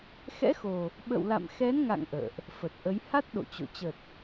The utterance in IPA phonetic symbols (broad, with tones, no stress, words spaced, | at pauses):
xɛ̰˧˥xo˨˩ | ɓə̰˧˨wla̰˧˨mxɛ˨˦nŋa̰˧˨ŋ ʔə̰ː˧˨ʔ | fə˨˩t̚ʔə˨˦j ha˦˥t̚ ɗo̰˧˨t͡ɕo̰˧˨ t͡ɕə˨˩t̚